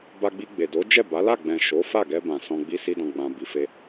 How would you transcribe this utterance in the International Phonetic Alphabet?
b a˧ ɡ͡b i˧ ɡ͡b e˨ d o˨˦ d͡ʒ ɛ˦˨ b a˨˦ l a˦˨ ɡ͡b ɛ̃˨ ʃ o˨˦ f a˦˨ ɡ ɛ˧ b ã˨ s ɔ̃˧ ɡ͡b i˦ s i˦ d ɔ̃˧ ɡ͡b ã˧ b i˧ f e˦

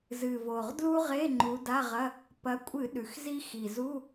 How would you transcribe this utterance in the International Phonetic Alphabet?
z ɨ˨˩ v o˨˩ ʁ d l u˥ ʁ e˧˥˧ ŋ͡ǃ u˨˦ d a˧˥˧ ʁ ɐ˧˥˧ | p ɐ˨˦ kʷʼ ɨ˧˩˧ ɗ ʉ˨˩ x z i˥ x i˨˩ z u˧˥˧

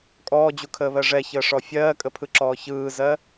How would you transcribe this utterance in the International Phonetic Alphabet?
kʼ ɔː d͡ʑ u kʰ əː β ɜ ʐ ɛ ç əː ʂ ɔ fʲ ɜː kʼ ə pʰ ɯ ǁ ɔː ç ɯː z ɜ

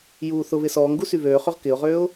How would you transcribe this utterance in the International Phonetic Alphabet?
j uː θ ʊ β ɪ s ɔː ŋ ɡ u s y β øː χ ø ʁ k ɪ ʊ̯ ʁ øː ʊ̯

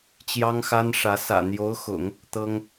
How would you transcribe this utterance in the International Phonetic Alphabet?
t͡ɕ j ɑ˥ ŋ x a˥ n ʂ ä˧˥ s ä̰˨˩ n̪ j o˧˥ ʊ̯ x ʊ̰˨˩˦ ŋ | t̪ ɤ˥ ŋ

